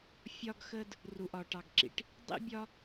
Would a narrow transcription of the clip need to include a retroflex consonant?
yes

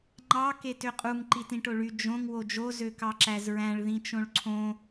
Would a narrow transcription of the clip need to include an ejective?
yes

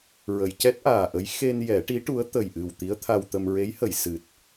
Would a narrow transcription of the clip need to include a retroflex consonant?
yes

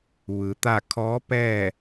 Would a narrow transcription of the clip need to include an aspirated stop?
yes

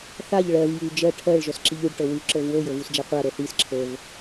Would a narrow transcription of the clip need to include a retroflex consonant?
yes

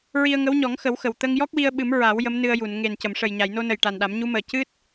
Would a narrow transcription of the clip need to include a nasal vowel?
no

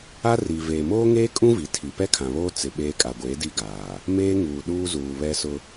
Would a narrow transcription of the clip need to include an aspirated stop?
yes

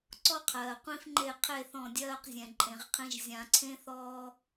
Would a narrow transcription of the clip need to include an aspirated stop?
yes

